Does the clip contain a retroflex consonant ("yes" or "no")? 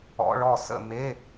yes